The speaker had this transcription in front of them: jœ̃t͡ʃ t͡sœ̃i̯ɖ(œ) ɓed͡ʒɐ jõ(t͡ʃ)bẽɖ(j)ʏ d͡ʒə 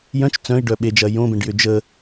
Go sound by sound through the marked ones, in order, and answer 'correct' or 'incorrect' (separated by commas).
correct, incorrect, correct